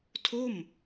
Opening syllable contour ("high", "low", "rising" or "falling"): falling